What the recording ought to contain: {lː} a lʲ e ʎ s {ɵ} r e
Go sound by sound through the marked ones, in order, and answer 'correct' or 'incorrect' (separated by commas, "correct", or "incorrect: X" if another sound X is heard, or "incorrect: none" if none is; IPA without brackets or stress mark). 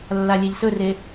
correct, correct